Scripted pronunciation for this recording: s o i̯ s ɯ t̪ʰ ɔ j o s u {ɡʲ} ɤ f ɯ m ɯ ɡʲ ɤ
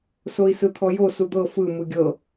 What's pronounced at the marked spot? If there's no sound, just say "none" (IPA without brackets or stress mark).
d̪